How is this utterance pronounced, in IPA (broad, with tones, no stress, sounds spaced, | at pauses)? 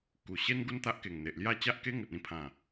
k u˨˩ ɕ e˦ n ɡ u˦ n t̪ a˦ ʔ k e˨˩ ŋ n̪ e˨ ʔ l j a˥˧ t͡ɕ a˦ ʔ k e˦ ŋ ə˨ t̚ ĩ˥˧ pʰ ã˨˩